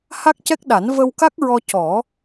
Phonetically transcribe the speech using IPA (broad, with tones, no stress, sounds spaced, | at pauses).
h a˦˥ k̚ c ɛ˦˥ k̚ ɗ a˨˩˦ n v ə˧ w k a˦˥ k̚ ɹ ɔ˧ c ɔ˨˩˦